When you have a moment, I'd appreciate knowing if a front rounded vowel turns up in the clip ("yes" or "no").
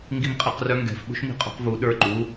yes